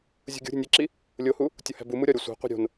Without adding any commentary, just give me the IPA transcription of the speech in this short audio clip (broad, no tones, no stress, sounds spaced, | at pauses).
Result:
zʲ ṳ ɡʲ ṳ ɾʲ ṳ nʲ e ǁ i | lʲ o h u | tʲ o h æ̤ b u m u ɾʲ ɒ ɾʲ o sʷ æ̤ qʷ i̤ ɾʲ o̤ n